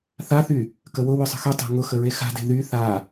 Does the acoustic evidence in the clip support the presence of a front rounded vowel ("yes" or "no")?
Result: yes